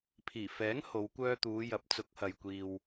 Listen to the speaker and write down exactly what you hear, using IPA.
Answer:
pʰiː˨˩ fɛː˨˥ŋ ho˨˧wkʷœː˧t̪uː˨˧ jɐ˨˥p̚t͡sʊ˨˥k̚hɐ˨j kʷiː˨w

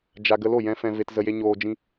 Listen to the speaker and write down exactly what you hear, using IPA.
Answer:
d͡ʒa˧ ɡə˧lo˦˨jɛ̃˧ fɛ̃˧ve˧tzə˧je˧ ɲoː˧d͡ʒĩ˦

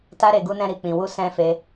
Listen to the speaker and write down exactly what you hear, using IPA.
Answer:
ta˦ɾe˧ ɡu˧nɛ̃˧ ɾi˨k͡pĩ˨wu˧ sɛ̃˦fe˦

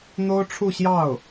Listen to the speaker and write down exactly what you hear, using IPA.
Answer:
n̪o˥ʊ̯ʈ͡ʂʰu˥˧ɕjɑ˥˩ʊ̯

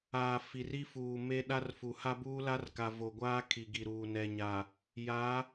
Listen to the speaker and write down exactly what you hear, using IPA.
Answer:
aː˨ fi˨ri˦fuː˨ me˦ ɗa˦rfu˨ ha˦buː˦la˦rka˨ vo˨ɡʷaː˦ kʰi˨ɡi˨ ɾuː˨nɛ˨ɲa˨ | ja˨˦

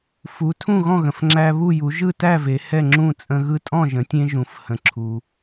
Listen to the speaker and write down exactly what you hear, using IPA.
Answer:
fu˩˧tʰũ˥˩ɣɔ̃˥˩ɣə̃˩f ŋ͡ǁæ˧βu˥˩ ju˩˧ʒɯ˥˩tæ˥˩ ve˩˧hɛ˥˩ŋ͡ǁũ˥˩t͡sʼə̃˧ ɣɯ˧tʼɔ̃˥˩ʒə̃˩˧tʲẽ˧ ʒũ˩˧fhə̃˩˧ǁʰu˩

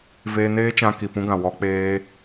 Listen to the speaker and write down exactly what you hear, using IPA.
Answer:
veː˧neː˦t͡ʃã˧ ki˨pũ˦ɡã˨ wɔ˧ k͡peː˦

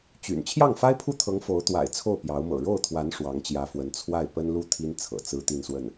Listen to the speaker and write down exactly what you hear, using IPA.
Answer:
t͡ɕy̰˨˩n t͡ɕʰjɑ˥˩ŋfa˥ɪ̯pʰu˥˩t̪ʰɤ˧˥ŋ fo˧˥ʊ̯t̪wa̰˨˩ɪ̯ t͡sʰo˥˩ʊ̯pjɑ˧˥ʊ̯mɤ̰˨˩ ɻo˥˩ʊ̯t̪ʰwa˧˥n ʂwɑ˧˥ŋt͡ɕjä˧˥fwə˧˥n t͡sʰwa˥˩ɪ̯ pə˥nlu˥˩ t̪ʰi˥n t͡sʰɤ̰˨˩t͡sɹ̩˥ t̪i˥˧nswə˥˩n

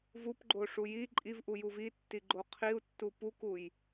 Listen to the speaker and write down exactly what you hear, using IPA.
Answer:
vupɡ͡ǃoʂu ji ǃʼivʔu juvitːi ɡ͡ǃoqʰiu̯tːu pukuj

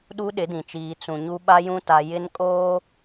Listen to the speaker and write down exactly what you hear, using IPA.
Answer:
ɗu˦ɗɪ˨˦dĩ˨t͡ʃiː˨ t͡sũ˨ɲu˦ ɓa˦jũ˦ ta˨ jɪ˦nkʼoː˦

